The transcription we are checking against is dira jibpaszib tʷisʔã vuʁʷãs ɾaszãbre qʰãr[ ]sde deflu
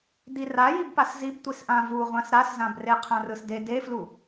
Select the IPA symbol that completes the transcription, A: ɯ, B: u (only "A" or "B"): A